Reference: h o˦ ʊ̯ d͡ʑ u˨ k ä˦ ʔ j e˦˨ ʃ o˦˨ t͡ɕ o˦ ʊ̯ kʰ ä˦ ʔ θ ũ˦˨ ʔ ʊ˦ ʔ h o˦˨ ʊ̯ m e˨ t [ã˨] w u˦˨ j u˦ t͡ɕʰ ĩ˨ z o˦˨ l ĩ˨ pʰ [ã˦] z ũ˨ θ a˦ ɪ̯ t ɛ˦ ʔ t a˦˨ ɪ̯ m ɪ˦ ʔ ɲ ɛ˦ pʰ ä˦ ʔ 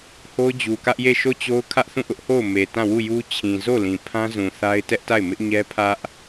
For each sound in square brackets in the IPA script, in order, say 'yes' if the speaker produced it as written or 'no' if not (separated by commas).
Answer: no, yes